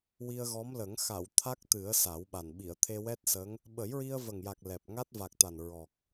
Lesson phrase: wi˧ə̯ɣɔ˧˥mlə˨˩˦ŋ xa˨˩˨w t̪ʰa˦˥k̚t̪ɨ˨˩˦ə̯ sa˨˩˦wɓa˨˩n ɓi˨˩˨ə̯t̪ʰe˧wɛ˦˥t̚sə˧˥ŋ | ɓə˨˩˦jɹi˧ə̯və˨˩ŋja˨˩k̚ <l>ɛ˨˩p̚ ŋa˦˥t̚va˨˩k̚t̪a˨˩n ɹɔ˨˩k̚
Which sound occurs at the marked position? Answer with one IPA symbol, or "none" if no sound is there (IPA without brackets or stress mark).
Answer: l